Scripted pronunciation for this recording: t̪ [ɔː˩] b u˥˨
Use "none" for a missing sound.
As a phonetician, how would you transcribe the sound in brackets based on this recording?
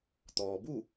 ɔː˩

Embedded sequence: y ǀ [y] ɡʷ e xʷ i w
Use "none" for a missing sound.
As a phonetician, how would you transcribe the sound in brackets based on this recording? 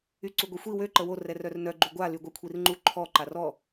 u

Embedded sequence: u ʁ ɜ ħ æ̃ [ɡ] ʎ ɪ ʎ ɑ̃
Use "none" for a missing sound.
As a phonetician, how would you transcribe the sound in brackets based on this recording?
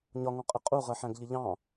ɡ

